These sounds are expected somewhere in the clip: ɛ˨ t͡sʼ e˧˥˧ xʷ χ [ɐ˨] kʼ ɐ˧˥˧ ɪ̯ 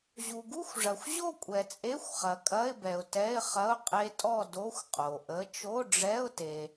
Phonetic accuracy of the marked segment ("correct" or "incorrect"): correct